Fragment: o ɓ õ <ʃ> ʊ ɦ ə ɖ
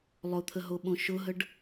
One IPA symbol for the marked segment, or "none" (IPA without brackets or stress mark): ʃ